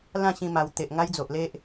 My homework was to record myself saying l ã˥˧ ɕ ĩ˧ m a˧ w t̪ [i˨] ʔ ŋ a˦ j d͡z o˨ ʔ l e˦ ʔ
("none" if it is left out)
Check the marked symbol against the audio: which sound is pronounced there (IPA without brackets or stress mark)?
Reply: e˨